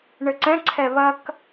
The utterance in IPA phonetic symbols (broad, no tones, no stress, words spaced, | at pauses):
ɳɘǀɛ̃ǀʰɛ βɐk